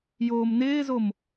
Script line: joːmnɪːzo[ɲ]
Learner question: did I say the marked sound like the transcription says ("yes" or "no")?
no